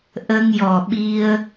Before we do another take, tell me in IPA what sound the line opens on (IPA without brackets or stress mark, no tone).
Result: ʔ